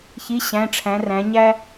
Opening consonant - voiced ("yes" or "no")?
no